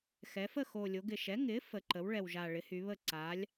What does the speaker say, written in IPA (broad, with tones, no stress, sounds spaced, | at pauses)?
x ɛ˩˧ f ə˥˩ x o˨˩ lʲ o˩˧ ɡ ɪ˨˩ ʃ ɛ˩˥ ŋ ɪ˩˥ f ə˩˧ ǃ ə˩˥ w ɭ ɛ˨˩ w ʒ a˨˩ ɭ ɪ˩˥ h y˩˧ β ə˥˩ ǀ a˩˥ lʲ